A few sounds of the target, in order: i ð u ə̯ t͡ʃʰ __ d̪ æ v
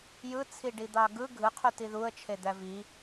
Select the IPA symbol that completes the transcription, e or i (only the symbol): e